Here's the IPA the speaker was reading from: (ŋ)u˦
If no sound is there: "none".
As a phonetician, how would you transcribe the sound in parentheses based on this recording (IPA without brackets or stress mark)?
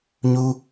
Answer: ɲ